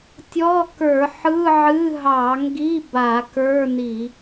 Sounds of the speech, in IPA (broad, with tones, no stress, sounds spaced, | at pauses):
tʲ ɔ˧˥˧ k ə˞˧˩˧ ħ ɯ˧˥˧ ʕ ɨ˧˥˧ ɦ ɑ˧˩˧ ŋ ɡ i˧˥˧ b a˧˩˧ k ə˞˧˥˧ n i˧˩˧